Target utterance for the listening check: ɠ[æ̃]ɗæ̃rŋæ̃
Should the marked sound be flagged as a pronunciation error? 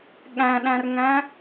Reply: no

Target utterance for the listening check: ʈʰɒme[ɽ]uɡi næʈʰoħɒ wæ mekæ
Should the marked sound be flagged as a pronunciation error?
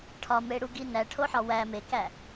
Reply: no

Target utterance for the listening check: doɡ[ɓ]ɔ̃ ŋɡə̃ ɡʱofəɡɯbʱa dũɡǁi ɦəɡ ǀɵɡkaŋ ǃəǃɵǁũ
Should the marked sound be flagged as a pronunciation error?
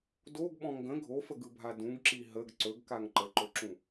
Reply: no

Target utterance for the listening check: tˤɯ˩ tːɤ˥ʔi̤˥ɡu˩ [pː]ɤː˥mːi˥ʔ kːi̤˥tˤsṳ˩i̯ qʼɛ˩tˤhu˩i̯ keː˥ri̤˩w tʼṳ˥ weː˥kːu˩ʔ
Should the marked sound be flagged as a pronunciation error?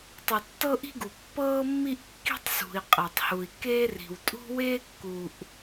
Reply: no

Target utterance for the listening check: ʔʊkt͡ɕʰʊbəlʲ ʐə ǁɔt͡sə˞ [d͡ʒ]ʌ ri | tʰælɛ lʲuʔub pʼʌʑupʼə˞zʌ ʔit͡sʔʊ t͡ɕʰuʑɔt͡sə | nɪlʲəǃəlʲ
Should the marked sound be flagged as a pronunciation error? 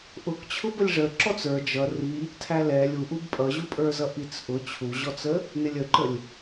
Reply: no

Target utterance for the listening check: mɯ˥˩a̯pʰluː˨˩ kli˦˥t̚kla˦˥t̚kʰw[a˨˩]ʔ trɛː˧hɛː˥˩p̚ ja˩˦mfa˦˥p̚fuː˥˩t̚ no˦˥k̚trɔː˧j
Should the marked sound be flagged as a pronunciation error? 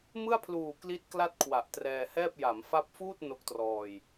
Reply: no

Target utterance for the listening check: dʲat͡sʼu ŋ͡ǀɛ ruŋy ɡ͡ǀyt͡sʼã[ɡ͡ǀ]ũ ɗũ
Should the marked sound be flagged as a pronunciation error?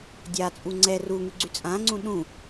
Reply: yes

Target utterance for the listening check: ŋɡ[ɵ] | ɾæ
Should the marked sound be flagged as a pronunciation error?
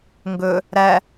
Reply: no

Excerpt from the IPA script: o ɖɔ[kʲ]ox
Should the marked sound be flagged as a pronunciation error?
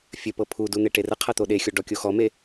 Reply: no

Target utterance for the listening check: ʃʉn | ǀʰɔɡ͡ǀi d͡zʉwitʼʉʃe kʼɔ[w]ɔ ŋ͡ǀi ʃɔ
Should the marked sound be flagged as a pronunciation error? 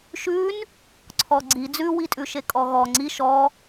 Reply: yes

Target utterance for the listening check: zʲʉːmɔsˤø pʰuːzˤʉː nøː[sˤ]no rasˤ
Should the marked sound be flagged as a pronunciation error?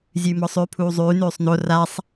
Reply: no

